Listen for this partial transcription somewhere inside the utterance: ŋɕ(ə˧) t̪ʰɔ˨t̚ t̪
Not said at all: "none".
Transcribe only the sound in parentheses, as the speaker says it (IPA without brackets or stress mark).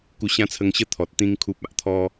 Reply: ə˦